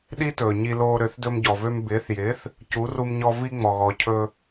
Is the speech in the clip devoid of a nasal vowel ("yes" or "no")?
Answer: yes